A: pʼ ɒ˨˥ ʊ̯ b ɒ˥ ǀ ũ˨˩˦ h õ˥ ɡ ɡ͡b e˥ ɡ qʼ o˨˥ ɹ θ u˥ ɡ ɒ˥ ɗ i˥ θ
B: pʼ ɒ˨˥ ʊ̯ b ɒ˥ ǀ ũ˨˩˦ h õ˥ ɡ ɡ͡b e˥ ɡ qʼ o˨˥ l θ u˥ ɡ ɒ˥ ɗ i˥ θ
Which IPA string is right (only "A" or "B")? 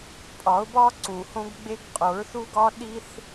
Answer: A